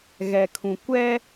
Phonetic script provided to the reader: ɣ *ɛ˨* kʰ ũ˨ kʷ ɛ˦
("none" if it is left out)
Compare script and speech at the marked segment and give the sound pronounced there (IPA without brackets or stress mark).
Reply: ɛ˨